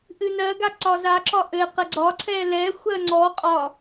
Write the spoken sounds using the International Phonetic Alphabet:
ʔ ɨ n ɜ ɡ a ǀ ɒ z a ǁ ɒ ʔ ɘ q ə ɡ͡ǀ ɒ ǀʰ ɛ l ɛ xʷ ɜ ŋ͡ǀ ɔ qʼ ɒ

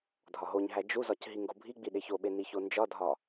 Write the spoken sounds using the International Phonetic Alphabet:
dʱ ɒ ɦ o ɲ ɦ æ d͡ʒ u z ɒ c ɦ i ŋ ɡ o bʱ i ɡ͡b i ɗ e ç o ɓ e n i ç o n d͡ʒ ɒ dʱ ɒ

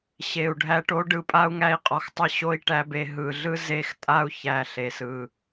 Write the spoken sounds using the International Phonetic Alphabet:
ɕ e˨ u̯ ɖʱ æ˧ ʈ o˦ ɖ ɯ˧ pʼ a˦ u̯ ŋ æ˧ i̯ qʼ ɔ˨ x tˤ ə˦˨ ɕ o˦ i̯ ʈ æ˦ b e˧ ɦ ɯ˨ ɮ ɯ˦ z e˦˨ x tʼ a˦ u̯ ç æ˧ ɬ e˨ s ɯ˨

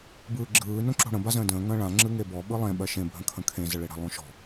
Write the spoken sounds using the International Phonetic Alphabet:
b ɯː ɡ͡ǁ ɯː n õ ǁ o̤ ɽ ə̃ b a z ə̃ː d ə̃ː ŋ ə̃ː ɭ ã ŋ͡ǁ ɯ ŋ e b ɔ ɓ ɯ lˠ ẽ ɓ ɜ ʃ ẽ bʱ ə̃ kʰ ə̃ kʰ ẽ z ə ɭ e ɽ ə̤ lˠ õ ʃ ɔ̤

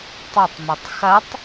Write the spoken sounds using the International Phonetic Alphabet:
tˤ ɵ tˤ m ɵ tˤ x ɐ tˤ

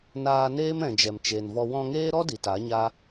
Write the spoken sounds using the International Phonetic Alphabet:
n aː˧ n eː˦ m ɛ̃˨ d͡ʒ ɛ˨ m t͡ʃ eː˨ n v ɔ˧ w ɔ̃˧ ŋ eː˦ ɾ ɔ˦ d i˨ t a˨˦ ɲ a˦

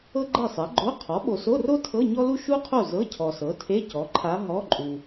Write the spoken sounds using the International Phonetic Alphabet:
ɤ˥ ɡ͡ǃ ɛ˥˨ sˤ ɛ˩˥ ɡ͡ǃ o˧˥˧ qʰ ɔ˩˥ ɓ o˨ s o˧˥˧ r o˥ tʰ ɤ˧˥˧ ɲ ɔ˥ l u˥ ʃ u˥ qʰ o˥˨ z ɤ˧˥˧ cʰ ɔ˨ s ɤ˩˥ tʰ e˧˥˧ c ɔ˩˥ ǃʰ a˧˥ ɦ ɔ˧˥˧ ǃʼ u˨

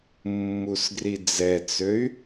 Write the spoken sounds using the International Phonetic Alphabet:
mː u s ɡ r i d͡z ɛ t͡s ø y̯

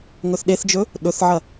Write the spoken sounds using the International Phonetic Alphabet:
ŋ ɵ θ ɗ e θ d͡ʒ ɵ | ɗ ɵ θ ʕ ɐ

